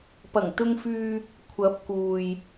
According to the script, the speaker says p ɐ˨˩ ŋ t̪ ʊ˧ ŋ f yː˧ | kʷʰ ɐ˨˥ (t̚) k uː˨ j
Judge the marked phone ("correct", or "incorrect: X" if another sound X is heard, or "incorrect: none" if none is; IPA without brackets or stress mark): incorrect: p̚